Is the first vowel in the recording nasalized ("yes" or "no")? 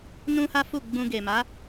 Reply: yes